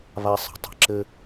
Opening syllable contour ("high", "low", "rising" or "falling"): high